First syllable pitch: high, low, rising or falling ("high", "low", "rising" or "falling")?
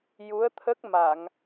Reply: rising